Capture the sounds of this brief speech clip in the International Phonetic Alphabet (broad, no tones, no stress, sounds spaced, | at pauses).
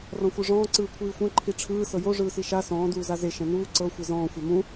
r ɔ̃ xʷ ɯ ʐ ɔ̃ː ǀ ɯː kʷʰ iː xʷ ɛ̃ ǃʰ i ʈ͡ʂʰ ɯː s ɤ j o ʐ ɯː s i ʃ a s ɔ̃ː d uː z a z e ʃ ɛ̃ n uː ǀ ɤ xʷ e z ɔ̃ː xʷ a m ũ